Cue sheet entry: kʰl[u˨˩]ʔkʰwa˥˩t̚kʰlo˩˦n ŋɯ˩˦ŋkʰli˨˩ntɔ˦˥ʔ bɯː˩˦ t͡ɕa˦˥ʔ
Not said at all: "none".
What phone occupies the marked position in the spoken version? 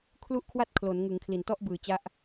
u˥˩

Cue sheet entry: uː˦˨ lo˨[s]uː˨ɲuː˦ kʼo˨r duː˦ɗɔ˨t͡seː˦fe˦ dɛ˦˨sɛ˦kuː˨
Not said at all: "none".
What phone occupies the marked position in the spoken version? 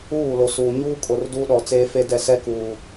s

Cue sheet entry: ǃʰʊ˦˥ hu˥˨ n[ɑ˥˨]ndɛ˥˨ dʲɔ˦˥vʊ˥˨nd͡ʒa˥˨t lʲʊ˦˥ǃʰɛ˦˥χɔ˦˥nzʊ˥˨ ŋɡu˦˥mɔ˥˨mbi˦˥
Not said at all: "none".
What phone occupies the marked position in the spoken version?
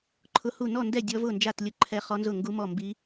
ɔ˥˨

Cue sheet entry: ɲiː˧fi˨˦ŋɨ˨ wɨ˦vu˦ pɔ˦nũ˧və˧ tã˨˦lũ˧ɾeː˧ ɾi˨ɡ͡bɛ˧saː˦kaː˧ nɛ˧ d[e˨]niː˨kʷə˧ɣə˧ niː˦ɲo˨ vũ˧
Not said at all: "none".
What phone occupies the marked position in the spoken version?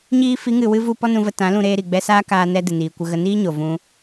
ɨ˨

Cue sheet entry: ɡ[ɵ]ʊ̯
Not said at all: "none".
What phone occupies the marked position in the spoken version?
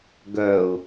œ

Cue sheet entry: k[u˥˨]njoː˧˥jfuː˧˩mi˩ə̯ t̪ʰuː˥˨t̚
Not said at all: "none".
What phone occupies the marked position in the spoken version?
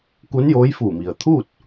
u˧˥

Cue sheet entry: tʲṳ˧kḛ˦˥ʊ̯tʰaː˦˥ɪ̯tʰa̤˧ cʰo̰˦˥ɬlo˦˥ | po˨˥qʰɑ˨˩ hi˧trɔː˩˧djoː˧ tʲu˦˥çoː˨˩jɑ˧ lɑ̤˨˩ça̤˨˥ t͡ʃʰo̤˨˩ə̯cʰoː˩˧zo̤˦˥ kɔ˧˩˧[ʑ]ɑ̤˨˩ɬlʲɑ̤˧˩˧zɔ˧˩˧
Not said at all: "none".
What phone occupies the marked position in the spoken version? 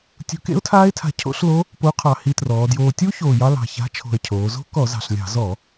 z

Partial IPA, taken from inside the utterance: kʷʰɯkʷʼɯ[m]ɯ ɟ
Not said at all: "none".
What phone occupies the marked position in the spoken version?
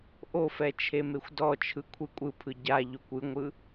pʰ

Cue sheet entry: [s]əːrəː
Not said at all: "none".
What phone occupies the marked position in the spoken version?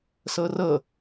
s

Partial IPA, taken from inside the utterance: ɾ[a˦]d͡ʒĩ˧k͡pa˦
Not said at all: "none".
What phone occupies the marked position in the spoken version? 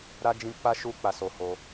a˦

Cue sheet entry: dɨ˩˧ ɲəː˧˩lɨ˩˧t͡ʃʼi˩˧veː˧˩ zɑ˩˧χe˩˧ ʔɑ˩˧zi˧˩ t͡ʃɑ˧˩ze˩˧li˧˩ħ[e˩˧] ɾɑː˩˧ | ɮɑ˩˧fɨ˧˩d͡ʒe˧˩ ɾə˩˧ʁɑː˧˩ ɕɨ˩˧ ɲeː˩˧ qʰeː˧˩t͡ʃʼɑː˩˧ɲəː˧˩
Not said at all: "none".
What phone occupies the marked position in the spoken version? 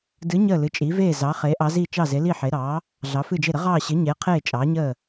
e˩˧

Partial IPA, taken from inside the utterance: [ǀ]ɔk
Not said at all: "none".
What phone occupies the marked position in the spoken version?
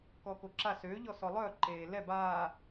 k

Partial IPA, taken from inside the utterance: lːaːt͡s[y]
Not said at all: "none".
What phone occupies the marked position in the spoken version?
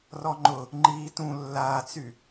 y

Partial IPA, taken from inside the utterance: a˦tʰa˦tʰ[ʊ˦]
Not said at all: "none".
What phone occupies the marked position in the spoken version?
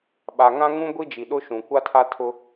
ʊ˦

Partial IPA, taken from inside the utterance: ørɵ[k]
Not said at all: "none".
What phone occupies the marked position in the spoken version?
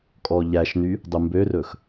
x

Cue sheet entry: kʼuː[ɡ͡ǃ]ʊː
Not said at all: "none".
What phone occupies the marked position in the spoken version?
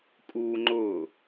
ŋ͡ǃ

